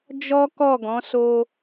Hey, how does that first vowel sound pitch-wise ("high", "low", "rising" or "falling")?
high